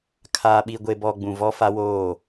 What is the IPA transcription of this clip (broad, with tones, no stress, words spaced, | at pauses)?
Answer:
kʰaː˨ɓi˨ɡʷe˨bɔ˨ ɡ͡bũ˨vɔ˦ fa˦woː˦˨